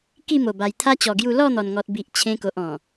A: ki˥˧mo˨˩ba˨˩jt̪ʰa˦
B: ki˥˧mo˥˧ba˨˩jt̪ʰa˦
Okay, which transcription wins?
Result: A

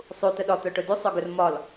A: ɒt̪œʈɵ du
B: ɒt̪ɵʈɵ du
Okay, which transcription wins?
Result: A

